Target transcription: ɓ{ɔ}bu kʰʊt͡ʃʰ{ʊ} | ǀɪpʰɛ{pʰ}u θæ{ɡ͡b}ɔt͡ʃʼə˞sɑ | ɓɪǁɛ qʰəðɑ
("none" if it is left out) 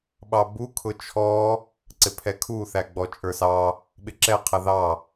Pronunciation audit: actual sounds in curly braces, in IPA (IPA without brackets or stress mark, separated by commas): ɑ, ɔ, kʰ, ɡ͡b